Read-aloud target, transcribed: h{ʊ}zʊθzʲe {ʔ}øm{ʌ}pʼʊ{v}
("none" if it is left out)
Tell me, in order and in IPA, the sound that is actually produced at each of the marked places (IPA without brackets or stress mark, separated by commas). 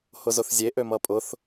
ʊ, ʔ, ʌ, θ